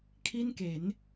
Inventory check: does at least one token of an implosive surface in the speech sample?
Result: no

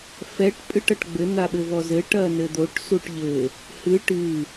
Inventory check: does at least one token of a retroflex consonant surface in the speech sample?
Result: yes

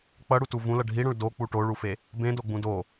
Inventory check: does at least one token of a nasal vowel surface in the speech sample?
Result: yes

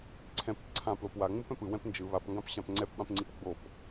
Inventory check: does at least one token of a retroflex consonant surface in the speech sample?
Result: no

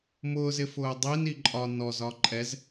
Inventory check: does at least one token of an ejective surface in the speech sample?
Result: yes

